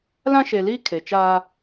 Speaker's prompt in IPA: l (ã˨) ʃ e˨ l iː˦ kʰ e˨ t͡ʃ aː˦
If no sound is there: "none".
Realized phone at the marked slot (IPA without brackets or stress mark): ã˦